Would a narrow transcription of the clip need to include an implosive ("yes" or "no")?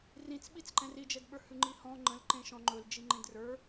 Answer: yes